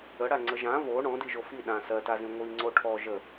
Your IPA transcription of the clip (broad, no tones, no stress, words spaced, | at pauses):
əɽaŋ͡ǀə ʒã vo ɳɔ̃diʒo fi ɗã sɜtazĩ ŋʷiŋ͡ǀo ʈʰɔ ʒə